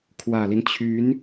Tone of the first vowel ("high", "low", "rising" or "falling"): low